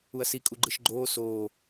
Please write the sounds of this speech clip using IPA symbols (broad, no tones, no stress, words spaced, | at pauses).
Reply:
uɐ̯si kʼuɡ͡ǃɯʃɡ͡ǃoː soː